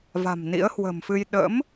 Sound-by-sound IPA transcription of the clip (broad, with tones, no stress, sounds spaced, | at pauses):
v a̤˨˩ m n ḭ˧˥ ə̯ h w ə̤˨˩ m f ɨ˧ j ɗ ə̰˧˥ m